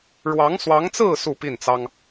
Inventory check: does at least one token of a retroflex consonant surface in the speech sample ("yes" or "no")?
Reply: yes